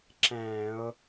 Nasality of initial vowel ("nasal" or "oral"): nasal